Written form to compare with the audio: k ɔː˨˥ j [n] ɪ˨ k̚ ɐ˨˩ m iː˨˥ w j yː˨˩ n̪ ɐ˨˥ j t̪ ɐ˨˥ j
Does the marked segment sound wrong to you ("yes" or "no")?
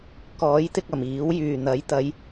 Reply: yes